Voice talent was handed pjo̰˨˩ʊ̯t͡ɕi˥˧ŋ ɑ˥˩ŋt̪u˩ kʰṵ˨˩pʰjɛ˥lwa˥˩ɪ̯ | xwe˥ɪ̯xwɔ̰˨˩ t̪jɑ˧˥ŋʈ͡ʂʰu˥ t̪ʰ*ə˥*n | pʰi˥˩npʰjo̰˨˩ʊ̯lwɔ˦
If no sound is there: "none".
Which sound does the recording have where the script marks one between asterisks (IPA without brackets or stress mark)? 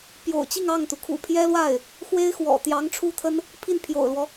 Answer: ə˥